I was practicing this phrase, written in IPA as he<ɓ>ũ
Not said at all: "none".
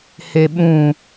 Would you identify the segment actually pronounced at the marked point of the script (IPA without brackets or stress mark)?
ɓ